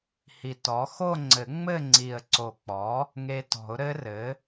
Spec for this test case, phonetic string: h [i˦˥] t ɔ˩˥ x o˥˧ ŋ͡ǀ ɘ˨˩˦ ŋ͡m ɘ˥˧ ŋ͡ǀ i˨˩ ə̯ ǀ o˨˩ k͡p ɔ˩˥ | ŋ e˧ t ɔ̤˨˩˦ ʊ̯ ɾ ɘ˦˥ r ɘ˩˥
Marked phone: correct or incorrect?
incorrect